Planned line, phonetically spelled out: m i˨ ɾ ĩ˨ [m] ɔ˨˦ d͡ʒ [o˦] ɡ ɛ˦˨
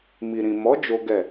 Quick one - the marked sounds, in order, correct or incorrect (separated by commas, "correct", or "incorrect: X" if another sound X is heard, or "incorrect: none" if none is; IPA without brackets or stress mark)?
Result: correct, correct